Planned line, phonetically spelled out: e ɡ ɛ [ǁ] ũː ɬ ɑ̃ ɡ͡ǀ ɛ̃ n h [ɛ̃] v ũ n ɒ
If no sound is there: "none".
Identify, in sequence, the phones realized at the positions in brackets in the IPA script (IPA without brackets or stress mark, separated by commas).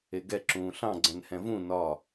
ǁ, ɛ̃